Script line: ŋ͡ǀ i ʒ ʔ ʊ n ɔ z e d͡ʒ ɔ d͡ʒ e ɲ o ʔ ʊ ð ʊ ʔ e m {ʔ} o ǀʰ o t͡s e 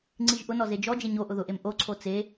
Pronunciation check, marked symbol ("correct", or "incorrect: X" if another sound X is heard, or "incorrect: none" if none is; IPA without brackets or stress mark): correct